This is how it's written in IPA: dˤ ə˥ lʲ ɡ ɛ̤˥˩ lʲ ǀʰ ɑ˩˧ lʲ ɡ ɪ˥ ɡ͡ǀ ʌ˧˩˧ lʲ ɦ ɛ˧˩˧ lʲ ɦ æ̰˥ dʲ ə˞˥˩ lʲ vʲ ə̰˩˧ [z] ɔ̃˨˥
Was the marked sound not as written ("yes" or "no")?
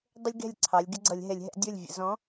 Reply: no